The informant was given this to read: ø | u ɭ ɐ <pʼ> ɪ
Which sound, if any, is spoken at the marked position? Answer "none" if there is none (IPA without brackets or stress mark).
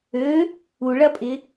pʼ